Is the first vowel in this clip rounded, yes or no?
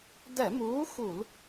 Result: no